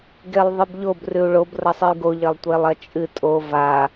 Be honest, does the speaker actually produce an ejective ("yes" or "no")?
yes